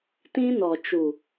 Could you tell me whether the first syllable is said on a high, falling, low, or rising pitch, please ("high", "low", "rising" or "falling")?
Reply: high